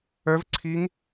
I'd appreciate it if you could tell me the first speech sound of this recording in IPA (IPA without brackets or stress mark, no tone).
œ